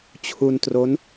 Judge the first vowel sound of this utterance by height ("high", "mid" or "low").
high